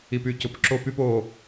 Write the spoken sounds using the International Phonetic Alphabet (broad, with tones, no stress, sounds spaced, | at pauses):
i˨ p y˨ c ʊ˨ p ǁ o˦ p y˦ p o˦˨